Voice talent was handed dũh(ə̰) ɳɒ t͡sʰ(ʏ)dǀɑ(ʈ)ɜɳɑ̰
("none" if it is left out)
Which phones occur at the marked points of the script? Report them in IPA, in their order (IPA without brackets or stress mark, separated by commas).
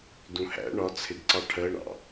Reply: æ̰, ɪ, ʈʰ